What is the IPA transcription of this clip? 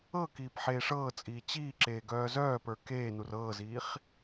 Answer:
ɤ k iː p ħ eː ʂ ɤː t͡sʼ iː t͡ɕ iː ǁ eː ɡ œː z œː p ə˞ k eː n u r ɤː z iː χ

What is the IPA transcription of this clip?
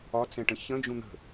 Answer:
ɒ t͡s ɛ̃ ʈ ə̃ ç ə̃ d͡ʒ ũ n̪ ə̤

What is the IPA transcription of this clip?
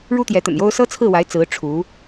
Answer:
ɻ u˥ t̪ j ɛ˧˥ t̪ ə̰˨˩ n j o˥ ʊ̯ s ɤ˥ t͡sʰ ɹ̩˥˩ w a˧˥ ɪ̯ t͡s ɹ̩˧˥ ʈ͡ʂʰ u˧˥

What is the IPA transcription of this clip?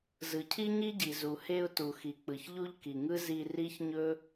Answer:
z ɯ˩ cʰ i˥ ɲ i˥ ɟ i˩ z u˩ h e˦ ʊ̯ t u˩ x i˩ k͡p ɯ˩ ç ʎ u˥ ʎ k i˩ ŋ ɯ˥ z i˦ r i˥ ç ɲ ɵ˥

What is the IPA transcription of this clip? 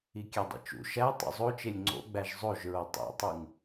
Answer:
i kʲ æ dˤ ḭ t͡ʃ ṵ ʃ æ tˤ ṵ zˤ o t͡ʃ e lʲ ŋ͡ǀ o̰ ɡ͡b æ ʒ zˤ o ʒ ɹ o tˤ ḛ tˤ u ŋ

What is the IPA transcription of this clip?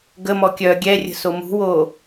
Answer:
ɡ ə m ɔ kʲ œ ɡʲ ɛ rʲ ə̤ s o m ṳ w o

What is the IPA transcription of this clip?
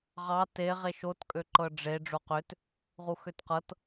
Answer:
ʁ ɑ t e ʁ e ʃ o t kʼ ø ǃ ɤ ɖ͡ʐ e ɖ͡ʐ o q ø t | ʁ u x ø t q ɤ t

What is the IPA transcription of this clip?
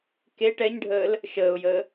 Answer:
k e ʈ ɛ ɲ ɖʱ əː l | ʃ əː ʊ̯ j əː

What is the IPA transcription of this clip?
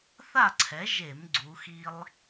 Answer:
θ a˥˨ ǀʰ ɛ˩˥ ʒ e˧˩˧ m ɡ͡ǀ u˩˧ x i˧ lˠ

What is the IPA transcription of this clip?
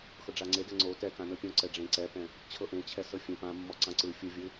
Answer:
x ɤ ɖ͡ʐ a ŋ͡ǀ e d ɛ ŋ͡ǀ o t ɛ k ã n ɤ pʲ õ ǀ ɛ ɖ͡ʐ ẽ ǀ ɛ p ɛ̃ | t͡ɕʰ ɤ ʔ ẽ t͡ɕʰ ɛ s ɤ fʲ ɛ̃ p ã mː ɔ ǀ ã ǀ ɯ fʲ ɯ vʲ ɯ

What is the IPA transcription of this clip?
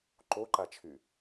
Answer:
ǃ o ǃ a t͡ʃʰ y

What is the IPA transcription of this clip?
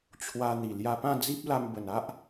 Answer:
t͡ɕʰ w a˧ n̪ i˨˩ l j a˧ p ã˥˧ d͡z i˦ p̚ l a˧ m b ə˨˩ n a˦ ʔ

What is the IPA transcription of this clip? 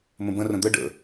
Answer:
m ə̃ b ə̃ r ə̃ d̪ ə ɖ ə̰

